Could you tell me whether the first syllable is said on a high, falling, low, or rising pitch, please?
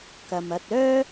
low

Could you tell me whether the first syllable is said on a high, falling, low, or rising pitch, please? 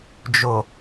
low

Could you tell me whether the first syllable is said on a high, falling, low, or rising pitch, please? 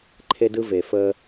high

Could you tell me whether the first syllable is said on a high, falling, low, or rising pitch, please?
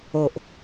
low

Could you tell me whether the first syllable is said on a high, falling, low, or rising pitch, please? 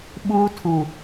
high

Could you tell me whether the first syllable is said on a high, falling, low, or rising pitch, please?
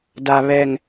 low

